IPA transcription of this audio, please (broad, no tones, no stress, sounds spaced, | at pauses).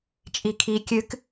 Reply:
t͡ʃʼ i kʰ i kʲ ɨ k